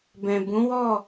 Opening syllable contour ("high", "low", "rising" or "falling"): low